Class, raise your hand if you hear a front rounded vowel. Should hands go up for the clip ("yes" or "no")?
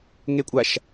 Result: no